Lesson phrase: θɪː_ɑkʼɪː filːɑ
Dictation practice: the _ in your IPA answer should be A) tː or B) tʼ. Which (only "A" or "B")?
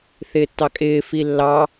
A